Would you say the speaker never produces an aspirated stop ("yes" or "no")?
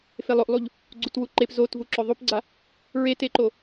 yes